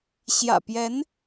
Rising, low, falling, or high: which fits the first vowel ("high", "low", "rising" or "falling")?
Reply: low